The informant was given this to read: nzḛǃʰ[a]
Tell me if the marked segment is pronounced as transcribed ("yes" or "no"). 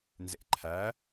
no